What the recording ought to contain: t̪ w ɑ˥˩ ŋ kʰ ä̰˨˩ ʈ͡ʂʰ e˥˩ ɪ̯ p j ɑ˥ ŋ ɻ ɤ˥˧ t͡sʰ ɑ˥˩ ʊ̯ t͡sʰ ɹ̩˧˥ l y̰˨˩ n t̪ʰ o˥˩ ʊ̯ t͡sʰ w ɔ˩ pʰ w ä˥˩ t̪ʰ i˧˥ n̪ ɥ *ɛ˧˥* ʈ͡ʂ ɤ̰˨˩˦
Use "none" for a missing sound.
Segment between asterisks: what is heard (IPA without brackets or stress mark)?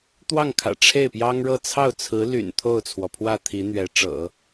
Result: ɛ˧˥